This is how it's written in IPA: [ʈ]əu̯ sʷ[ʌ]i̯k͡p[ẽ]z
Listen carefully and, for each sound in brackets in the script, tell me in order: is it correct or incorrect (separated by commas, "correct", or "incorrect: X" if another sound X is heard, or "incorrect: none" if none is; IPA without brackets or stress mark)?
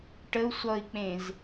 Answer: correct, correct, correct